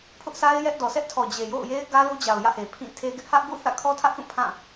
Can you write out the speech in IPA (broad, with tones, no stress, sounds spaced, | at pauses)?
pʰ ʊ˦ ʔ sʰ a˦ ɪ̯ j ɛ˦ ʔ d ɔ˨ sʰ ɛ˦ ʔ tʰ ɔ˨ d͡ʑ e˨ j o̰˦˨ ʊ̯ j e˦ ɪ̯ ɡ ä˦ l u˦ d͡ʑ a˨ ʊ̯ j ä̰˦˨ h e˨ pʰ ĩ˦˨ tʰ e˦ ɡ ɪ˦ ʔ h ä˦ ʔ ɡ ṵ˦˨ θ ä̰˦˨ kʰ ɔ˦ tʰ ä˦ ʔ θ ũ˦˨ pʰ ã˦˨